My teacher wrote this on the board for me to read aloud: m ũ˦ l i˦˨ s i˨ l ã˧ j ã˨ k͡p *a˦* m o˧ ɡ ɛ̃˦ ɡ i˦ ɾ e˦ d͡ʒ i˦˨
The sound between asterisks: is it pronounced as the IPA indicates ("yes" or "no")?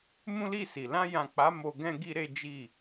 no